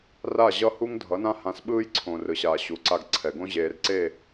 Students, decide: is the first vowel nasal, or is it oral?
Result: oral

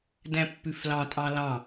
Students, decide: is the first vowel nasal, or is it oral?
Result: nasal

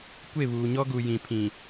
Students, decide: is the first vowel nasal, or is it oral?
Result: oral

